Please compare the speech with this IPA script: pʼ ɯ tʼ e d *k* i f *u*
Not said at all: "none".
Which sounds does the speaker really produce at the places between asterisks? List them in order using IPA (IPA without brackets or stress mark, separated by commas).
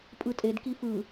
k, ɯ